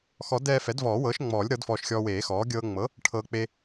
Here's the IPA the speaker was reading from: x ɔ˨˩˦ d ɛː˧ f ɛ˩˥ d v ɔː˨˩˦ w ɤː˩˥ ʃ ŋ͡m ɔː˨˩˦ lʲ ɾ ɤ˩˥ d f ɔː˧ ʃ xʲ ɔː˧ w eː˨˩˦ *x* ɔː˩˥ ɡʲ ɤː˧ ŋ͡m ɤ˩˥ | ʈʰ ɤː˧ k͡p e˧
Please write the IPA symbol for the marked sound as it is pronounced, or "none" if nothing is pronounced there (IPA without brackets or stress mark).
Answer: x